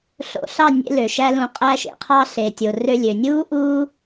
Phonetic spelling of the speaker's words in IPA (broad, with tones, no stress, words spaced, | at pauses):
ɬo̰˧ɬɑ˦˨nʲḛ˧ lø˨ʃæ˦lũ˧ qʼæ˧ʃḛ˨qʰɑ˧ ɬe˨tʲo˨ rø˧lʲø˨nʲuː˦ ʔuː˦